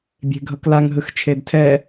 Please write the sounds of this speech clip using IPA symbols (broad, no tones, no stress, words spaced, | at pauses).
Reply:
bʲe̤ɡʱʌklaŋ ɦɯxt͡ʃʰedtʰɛ